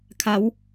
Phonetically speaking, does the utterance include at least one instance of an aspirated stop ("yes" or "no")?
yes